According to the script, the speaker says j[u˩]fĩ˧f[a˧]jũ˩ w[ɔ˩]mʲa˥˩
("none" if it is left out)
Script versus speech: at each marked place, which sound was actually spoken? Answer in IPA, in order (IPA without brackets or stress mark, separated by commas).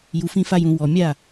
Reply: u˩, a˧, ɔ˩